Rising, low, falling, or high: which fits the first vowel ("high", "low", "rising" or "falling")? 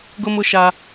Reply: high